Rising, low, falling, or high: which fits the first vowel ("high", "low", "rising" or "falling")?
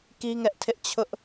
high